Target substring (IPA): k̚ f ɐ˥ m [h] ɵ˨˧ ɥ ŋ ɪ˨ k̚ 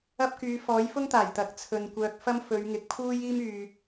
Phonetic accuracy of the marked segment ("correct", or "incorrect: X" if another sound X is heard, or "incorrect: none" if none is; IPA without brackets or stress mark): incorrect: f